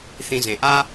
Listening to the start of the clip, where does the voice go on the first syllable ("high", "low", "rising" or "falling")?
low